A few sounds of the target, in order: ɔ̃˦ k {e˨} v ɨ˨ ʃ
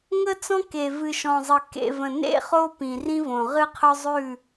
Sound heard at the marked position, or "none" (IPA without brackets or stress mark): e˨